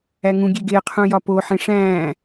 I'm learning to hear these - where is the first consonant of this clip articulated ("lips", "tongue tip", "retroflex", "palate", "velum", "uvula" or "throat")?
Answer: velum